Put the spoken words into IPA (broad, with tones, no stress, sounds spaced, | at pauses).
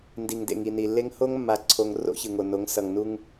n d i˨ ŋ d ḛ˨ ŋ i˨ n i˨ lː e˦ ŋ h o˦ ŋ mː a˨ ǀʰ o˨ ŋ r o̰˦ ç ɯ˨ ŋ o˨ n o˨˦ ŋ s ʌ˨ ŋ n u˦ ŋ